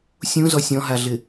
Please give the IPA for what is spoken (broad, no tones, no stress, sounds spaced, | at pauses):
sʲ ũ z ɔ sʲ ɔ̃ ɦ a ɮ ɪ